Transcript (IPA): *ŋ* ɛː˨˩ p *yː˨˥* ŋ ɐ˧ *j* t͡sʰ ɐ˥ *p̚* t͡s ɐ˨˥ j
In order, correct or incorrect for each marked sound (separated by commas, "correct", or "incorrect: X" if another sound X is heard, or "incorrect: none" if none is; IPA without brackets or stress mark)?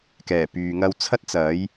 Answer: incorrect: k, incorrect: yː˨, incorrect: w, incorrect: t̚